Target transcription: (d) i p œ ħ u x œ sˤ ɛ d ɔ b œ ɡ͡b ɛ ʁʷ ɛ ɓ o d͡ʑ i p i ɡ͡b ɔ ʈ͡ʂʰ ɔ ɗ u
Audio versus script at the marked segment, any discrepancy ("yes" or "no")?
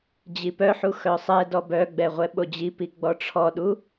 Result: yes